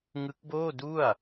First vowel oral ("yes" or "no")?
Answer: yes